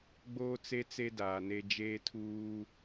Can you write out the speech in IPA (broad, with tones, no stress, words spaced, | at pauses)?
ɡ͡boː˦t͡se˦t͡se˦ daː˨ne˦ d͡ʒeː˦tʰuː˦